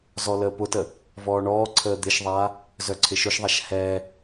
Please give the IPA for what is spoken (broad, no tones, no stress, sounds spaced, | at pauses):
z ɔ l əː p ʊ t ə | v ɔː ɳ ɔː ǀʰ əː d̪ ɪ ʃ ðˤ aː | z œ ǀʰ ɪ ʃ ʊ ʃ ðˤ a ʃ h ɛː